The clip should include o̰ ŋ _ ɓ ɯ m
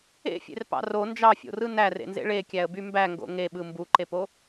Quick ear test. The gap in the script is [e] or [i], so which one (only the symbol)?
e